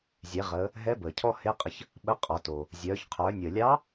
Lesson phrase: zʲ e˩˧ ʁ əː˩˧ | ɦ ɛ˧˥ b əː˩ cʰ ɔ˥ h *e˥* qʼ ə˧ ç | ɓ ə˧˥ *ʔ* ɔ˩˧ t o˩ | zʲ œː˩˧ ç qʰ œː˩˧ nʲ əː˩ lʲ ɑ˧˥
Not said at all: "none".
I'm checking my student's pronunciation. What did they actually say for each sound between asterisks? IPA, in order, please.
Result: e˧˥, qʼ

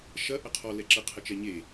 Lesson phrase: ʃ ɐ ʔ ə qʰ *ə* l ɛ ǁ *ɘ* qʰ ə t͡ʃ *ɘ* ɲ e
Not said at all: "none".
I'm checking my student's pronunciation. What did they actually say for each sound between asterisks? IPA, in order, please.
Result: ɔ, ɘ, ɛ

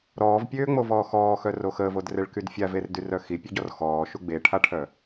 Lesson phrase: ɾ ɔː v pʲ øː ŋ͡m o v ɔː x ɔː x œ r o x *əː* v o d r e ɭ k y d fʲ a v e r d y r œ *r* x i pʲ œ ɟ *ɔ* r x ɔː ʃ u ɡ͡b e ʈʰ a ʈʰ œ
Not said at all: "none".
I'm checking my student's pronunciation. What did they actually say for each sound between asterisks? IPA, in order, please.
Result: əː, none, ɔ

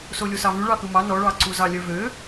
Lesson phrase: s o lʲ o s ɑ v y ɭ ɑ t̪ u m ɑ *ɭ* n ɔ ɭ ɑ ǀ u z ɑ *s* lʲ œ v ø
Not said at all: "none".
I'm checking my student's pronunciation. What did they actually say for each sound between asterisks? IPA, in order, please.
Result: none, none

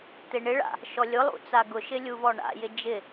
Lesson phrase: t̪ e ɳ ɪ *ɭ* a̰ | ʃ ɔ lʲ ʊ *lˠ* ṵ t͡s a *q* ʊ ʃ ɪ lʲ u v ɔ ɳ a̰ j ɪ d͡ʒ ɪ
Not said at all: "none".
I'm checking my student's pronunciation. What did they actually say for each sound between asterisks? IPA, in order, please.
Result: ɭ, lˠ, ɡ

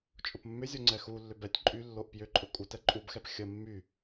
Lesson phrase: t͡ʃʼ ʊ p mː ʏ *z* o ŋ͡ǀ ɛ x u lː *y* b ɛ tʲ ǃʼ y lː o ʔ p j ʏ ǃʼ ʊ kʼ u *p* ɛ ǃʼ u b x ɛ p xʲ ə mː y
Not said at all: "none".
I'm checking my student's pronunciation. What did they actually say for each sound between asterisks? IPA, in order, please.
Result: zʲ, ʏ, t

